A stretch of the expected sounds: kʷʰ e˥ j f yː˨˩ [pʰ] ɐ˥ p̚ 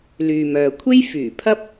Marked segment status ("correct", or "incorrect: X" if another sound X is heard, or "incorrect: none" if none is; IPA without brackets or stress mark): correct